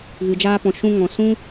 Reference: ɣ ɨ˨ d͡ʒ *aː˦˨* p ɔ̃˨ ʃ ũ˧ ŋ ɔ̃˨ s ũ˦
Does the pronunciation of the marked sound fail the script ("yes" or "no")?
yes